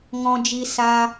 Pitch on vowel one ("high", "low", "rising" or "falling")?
high